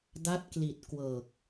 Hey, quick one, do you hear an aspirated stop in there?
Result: no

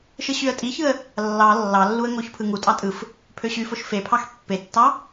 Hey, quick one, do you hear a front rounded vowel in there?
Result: yes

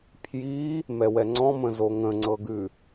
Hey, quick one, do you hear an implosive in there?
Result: no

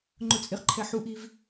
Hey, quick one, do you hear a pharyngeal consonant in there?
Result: yes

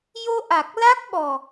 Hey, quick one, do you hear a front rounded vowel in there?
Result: no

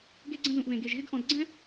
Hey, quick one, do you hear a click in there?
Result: yes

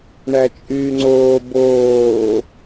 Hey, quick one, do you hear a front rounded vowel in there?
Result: yes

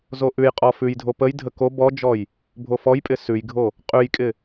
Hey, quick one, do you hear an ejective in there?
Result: yes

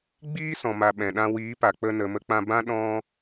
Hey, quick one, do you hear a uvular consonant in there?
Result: no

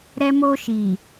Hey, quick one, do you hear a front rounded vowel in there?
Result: no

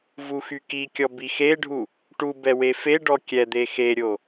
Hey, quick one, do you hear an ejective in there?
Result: no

